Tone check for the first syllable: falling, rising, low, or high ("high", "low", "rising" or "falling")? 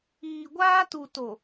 low